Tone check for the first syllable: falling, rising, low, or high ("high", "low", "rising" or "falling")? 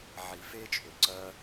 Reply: low